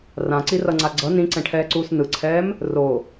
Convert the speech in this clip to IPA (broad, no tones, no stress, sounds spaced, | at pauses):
r ã ǀ i r ʌ ŋ͡ǀ a ɡ͡ǀ ʌ n ĩ ǀ ɛ̃ ʈʰ ɛː ǀ uː s n ɯ ǀʰ ɛː m | r o